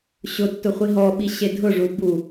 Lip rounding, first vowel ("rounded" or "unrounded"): rounded